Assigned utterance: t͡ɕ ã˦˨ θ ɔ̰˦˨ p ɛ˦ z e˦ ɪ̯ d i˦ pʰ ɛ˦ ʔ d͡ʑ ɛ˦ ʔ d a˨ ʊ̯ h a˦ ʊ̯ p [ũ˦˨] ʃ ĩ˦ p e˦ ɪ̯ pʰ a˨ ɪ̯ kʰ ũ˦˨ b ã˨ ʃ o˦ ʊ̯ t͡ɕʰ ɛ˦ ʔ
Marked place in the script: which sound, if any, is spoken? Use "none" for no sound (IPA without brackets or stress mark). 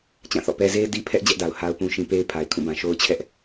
ũ˦